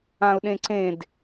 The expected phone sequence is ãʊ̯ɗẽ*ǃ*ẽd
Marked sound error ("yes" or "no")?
yes